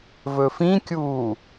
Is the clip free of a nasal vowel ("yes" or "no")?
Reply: no